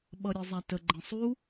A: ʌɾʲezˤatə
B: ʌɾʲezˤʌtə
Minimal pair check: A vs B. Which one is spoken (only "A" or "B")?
A